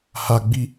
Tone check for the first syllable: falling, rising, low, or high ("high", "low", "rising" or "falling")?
high